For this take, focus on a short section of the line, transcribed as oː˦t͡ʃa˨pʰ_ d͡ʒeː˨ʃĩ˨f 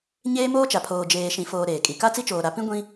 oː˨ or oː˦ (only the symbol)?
oː˨